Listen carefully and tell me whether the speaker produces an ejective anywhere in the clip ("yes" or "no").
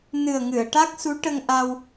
no